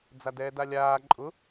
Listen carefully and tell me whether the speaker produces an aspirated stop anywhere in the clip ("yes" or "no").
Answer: no